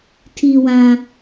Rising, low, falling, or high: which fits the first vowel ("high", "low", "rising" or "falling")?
low